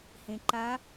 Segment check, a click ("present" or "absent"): present